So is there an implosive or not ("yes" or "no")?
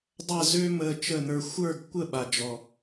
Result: yes